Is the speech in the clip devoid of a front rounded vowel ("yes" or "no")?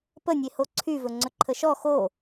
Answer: no